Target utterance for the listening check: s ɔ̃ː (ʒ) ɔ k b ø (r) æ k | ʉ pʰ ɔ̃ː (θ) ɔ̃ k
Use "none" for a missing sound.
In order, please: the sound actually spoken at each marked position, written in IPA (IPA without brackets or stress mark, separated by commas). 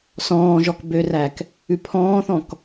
ʒ, r, θ